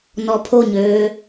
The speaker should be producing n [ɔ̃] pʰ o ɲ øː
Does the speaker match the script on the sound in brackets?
no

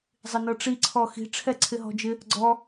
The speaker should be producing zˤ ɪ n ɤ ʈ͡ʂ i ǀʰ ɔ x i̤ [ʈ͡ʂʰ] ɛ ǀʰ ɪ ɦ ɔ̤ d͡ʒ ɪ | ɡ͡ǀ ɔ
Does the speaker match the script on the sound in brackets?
yes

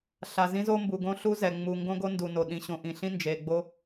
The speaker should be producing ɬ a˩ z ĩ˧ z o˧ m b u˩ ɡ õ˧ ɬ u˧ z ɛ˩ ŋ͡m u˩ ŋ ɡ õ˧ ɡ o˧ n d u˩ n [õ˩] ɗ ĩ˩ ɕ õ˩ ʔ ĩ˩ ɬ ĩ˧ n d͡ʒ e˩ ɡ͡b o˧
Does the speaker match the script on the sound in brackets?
no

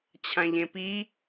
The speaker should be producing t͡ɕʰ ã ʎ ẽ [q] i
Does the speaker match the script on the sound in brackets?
no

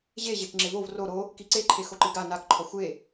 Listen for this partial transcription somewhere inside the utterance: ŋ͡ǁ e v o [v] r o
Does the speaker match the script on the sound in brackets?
yes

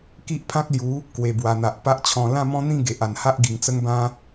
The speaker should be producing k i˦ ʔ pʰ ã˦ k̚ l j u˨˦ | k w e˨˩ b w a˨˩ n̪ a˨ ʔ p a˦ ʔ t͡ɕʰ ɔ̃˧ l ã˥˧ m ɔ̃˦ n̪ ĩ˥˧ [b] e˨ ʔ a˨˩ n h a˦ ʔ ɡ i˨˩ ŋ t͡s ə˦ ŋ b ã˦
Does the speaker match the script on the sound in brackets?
no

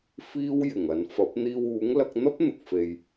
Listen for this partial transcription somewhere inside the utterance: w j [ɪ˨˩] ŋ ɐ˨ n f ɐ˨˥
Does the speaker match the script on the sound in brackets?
yes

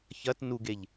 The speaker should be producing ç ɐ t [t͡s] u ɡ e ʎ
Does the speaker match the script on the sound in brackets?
no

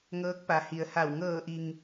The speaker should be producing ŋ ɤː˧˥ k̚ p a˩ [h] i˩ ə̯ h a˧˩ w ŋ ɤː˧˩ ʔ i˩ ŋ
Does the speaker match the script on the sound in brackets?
yes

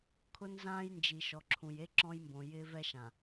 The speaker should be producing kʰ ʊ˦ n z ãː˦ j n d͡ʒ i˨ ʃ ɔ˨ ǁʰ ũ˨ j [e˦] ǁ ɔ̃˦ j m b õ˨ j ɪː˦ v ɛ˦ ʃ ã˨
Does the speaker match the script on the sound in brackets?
yes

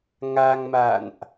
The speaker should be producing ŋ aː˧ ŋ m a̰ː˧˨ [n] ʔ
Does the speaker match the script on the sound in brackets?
yes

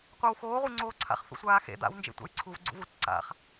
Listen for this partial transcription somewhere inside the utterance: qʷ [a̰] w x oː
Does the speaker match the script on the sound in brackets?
no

